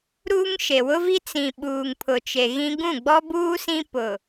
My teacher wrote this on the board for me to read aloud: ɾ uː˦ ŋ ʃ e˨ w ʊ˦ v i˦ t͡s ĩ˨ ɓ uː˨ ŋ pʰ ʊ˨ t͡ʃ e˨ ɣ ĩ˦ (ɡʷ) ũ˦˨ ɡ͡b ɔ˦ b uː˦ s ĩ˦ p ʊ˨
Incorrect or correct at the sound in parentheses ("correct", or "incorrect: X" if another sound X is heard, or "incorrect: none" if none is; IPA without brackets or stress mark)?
incorrect: ɡ